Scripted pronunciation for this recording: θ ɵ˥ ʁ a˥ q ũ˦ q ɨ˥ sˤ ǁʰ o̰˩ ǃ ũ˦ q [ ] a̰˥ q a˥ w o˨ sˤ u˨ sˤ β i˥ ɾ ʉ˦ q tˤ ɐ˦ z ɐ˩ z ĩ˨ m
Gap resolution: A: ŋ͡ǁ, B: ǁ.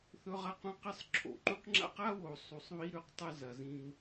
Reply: A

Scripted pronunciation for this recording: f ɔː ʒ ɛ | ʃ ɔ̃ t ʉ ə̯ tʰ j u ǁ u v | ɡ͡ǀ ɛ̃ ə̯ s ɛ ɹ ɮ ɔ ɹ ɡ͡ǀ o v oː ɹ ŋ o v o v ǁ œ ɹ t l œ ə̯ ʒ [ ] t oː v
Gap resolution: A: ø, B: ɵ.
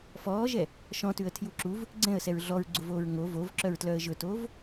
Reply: B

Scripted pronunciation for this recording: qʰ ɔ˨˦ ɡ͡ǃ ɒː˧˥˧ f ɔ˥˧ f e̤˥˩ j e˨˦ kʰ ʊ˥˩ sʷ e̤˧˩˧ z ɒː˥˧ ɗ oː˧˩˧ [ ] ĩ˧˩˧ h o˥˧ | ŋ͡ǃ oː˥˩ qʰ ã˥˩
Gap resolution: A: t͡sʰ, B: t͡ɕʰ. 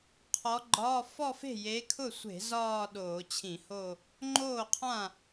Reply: B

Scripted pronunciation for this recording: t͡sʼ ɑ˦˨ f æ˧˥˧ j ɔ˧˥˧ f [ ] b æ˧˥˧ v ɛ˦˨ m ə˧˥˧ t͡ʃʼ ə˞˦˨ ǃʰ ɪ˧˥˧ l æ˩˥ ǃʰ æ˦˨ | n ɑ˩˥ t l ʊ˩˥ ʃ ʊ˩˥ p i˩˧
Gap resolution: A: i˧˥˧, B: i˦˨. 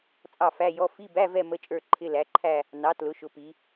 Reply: A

